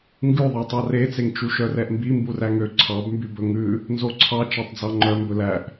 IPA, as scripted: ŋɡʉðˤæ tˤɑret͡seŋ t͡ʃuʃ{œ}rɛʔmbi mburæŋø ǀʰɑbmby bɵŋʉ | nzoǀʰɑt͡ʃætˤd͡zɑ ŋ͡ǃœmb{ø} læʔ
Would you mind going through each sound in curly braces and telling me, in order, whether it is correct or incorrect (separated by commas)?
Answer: correct, incorrect